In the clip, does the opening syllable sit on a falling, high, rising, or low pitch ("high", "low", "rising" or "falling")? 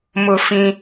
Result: high